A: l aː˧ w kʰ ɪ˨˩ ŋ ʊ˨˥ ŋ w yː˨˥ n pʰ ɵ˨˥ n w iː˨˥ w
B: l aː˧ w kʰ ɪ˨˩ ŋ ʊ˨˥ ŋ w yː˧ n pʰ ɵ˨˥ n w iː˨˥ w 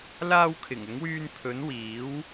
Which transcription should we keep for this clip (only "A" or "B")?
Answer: B